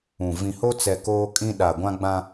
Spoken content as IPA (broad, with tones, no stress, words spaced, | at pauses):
ũ˨ vĩ˨ho˦t͡sɛ˨ koː˦kʼĩ˦ ɗa˨ɡʷã˦ɡ͡bã˦